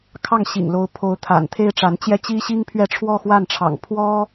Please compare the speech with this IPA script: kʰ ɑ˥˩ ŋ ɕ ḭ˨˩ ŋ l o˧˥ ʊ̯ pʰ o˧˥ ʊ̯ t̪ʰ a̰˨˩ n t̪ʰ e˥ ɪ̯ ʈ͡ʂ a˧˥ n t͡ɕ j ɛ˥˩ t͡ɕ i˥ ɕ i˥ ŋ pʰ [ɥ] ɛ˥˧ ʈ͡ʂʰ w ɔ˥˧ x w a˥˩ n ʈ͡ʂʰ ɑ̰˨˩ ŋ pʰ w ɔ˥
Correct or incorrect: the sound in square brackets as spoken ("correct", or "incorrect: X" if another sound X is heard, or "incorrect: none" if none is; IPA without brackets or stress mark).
correct